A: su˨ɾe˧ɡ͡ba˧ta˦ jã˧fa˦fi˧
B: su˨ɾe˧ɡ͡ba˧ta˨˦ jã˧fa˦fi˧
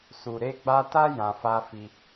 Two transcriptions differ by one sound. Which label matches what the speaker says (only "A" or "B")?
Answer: A